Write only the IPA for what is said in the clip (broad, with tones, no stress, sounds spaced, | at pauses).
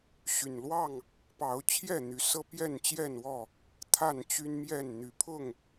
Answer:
ɕ y˨˩ n l w ɑ˥˨ ŋ | p ɑ˨˦ ʊ̯ t͡ɕʰ j ɛ˥˨ n̪ y˨˦ s ɤ˦ p j ɛ˥˨ n t͡ɕ j ɛ˥˨ n w ɔ˥˨ | t̪ʰ a˥˨ n t͡ɕ y˦ n m j ɛ˥˨ n n̪ y˨˦ pʰ ʊ˥˨ ŋ